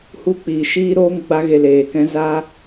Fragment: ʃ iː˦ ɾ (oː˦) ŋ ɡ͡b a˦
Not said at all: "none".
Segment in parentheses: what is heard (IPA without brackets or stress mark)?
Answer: oː˦